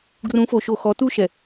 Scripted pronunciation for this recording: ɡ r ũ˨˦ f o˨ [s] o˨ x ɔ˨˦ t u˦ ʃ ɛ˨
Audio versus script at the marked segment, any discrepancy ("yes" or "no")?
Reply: yes